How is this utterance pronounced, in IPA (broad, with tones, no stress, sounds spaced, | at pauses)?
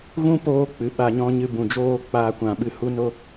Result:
ɣ ũ˦ p oː˧ k͡p ɨ˨ ɓ a˧ ɲ ɔ̃˦ ɲ ɨ˧ b ũ˨ d͡ʒ oː˦ k͡p aː˧ kʷ ã˨ ɓ ɨ˧ h u˦ n o˦